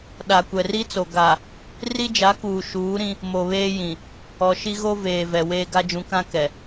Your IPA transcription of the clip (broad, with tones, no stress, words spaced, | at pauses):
ɗa˨kʷɛ˨ri˦t͡so˨ ɡa˨ | ri˦d͡ʒa˨˦kuː˨ ʃuː˨˦ɾĩ˦ | mo˨ βeː˦jĩ˨ | ɔ˨ʃi˦ɣo˦ veː˨ vɛ˨weː˦ ɡa˦d͡ʒũ˨˦kã˦ kɛ˨